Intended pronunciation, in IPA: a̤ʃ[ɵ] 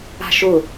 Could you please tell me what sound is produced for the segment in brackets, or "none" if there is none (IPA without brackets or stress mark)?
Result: ʊ